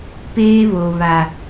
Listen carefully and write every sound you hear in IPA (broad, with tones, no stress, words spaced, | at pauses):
peː˦βo˨ βa˨